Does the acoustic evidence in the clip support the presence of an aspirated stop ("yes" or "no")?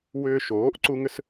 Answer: no